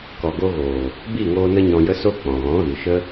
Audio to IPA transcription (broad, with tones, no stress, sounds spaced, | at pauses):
k ɔ˨ ɡ o˧ ɣ oː˨ | b i˦˨ ŋ oː˧ n ə˦ ɲ ɔ̃˧ j ə˦ s o˦ k͡p ɔ̃˨ ɣ ɔ̃˨˦ ɣ ɨ˨ ʃ ə˦